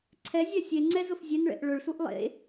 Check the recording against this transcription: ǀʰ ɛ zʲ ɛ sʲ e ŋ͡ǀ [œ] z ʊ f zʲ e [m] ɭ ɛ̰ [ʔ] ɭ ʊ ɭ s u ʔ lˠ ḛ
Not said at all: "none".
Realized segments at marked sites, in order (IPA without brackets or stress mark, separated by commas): ɛ, n, ʔ